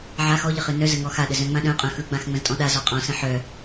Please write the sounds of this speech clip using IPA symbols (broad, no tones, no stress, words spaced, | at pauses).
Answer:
ʕa xɔʎə χɨnœzə ŋɔxaɗə zœ̃ŋ͡mãɗœ̃qʼœ̃ xɯɡ͡bãx ŋ͡mə̃ztʼɔ̃ɗazɔ qʼɔ̃sə̃ ħœ